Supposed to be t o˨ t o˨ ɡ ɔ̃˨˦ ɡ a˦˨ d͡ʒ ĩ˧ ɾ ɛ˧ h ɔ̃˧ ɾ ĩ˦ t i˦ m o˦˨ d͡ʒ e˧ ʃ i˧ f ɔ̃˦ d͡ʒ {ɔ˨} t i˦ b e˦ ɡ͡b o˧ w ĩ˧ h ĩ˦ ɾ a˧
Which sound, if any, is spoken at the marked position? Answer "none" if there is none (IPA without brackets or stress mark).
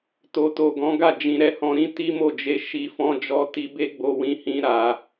ɔ˦